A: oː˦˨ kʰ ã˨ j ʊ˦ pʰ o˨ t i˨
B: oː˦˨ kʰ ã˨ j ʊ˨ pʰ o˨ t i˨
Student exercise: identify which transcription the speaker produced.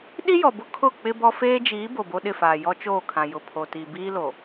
B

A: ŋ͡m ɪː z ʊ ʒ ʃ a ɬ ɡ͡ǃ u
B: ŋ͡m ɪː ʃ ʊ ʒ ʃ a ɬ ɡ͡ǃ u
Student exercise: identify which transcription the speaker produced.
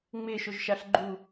B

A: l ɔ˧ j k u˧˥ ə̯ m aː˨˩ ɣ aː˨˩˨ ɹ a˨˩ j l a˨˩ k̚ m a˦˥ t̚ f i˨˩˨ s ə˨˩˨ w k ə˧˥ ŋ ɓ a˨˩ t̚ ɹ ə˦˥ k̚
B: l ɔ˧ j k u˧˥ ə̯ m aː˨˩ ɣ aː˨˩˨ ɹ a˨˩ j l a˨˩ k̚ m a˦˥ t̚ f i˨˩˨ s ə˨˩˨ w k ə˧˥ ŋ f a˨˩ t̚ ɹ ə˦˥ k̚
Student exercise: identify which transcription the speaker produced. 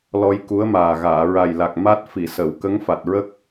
B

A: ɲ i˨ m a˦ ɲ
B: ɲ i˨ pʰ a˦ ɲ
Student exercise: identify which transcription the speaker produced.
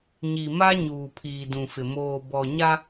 A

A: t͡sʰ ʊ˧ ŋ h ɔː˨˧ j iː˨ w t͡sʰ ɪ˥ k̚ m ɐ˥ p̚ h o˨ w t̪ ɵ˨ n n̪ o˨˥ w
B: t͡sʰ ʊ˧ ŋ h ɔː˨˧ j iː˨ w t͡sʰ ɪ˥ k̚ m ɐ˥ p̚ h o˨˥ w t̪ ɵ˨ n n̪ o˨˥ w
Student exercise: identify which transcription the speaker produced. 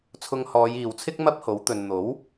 B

